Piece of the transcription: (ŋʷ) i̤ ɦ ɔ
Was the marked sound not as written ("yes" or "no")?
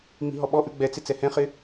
yes